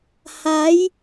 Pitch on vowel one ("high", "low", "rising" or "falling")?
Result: rising